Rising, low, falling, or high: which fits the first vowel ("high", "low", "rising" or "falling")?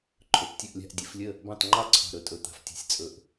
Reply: rising